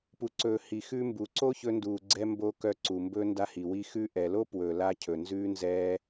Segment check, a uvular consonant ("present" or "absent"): absent